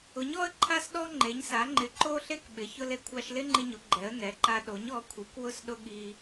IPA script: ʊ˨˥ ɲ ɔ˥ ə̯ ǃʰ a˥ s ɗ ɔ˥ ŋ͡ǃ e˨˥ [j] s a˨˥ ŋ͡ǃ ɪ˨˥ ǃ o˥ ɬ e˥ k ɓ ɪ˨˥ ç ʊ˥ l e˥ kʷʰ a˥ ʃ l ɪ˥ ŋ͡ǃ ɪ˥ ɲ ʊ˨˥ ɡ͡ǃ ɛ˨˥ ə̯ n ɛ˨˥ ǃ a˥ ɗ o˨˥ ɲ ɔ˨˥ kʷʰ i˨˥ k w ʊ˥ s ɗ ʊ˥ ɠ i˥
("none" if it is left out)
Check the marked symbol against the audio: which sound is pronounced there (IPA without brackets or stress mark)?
ɲ